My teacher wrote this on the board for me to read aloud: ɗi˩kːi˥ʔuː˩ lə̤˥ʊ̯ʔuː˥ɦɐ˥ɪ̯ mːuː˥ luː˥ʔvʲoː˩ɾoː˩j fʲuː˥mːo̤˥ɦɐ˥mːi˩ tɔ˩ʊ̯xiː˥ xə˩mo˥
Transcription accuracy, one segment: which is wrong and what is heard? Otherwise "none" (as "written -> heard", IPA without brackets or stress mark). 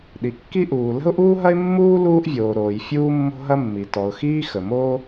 none